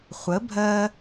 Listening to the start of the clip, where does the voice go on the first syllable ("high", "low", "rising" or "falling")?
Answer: rising